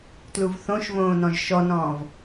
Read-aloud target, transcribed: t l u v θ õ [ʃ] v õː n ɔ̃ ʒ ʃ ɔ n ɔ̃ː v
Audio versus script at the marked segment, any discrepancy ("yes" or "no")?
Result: no